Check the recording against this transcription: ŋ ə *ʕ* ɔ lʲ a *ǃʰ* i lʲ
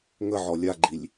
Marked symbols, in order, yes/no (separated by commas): yes, no